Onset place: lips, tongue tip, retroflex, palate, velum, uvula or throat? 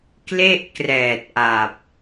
velum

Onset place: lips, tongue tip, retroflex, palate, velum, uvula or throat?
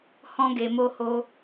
throat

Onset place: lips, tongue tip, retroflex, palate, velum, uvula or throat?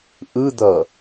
throat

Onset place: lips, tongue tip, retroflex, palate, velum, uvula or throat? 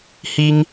throat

